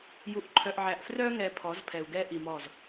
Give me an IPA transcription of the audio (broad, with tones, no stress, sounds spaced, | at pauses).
j u˨ ʔ ǃʰ œ˨ ʔ ʕ æ˨ ʔ f r œ˦ ŋ ɛ˨ pʰ ɔ˨˦ z pʰ ɛ˨ u̯ ɡ ɛ˦ ʔ i˨ m ɔ˦˨ z